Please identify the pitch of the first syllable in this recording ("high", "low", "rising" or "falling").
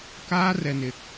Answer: high